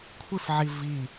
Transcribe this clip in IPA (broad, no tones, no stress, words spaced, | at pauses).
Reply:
kʷʰɪfʕi vi